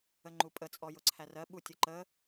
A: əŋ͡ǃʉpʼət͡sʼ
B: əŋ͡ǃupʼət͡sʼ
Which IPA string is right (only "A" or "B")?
B